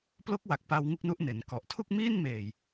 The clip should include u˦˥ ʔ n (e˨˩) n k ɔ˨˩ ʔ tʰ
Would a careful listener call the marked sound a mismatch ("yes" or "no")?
yes